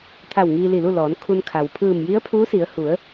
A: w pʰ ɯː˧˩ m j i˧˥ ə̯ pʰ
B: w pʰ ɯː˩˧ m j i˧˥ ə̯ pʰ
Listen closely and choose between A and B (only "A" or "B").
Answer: A